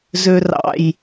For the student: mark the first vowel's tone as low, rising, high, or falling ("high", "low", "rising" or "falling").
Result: low